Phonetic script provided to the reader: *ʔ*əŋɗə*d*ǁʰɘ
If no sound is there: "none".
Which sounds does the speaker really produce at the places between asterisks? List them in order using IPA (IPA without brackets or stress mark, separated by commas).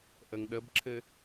ʔ, b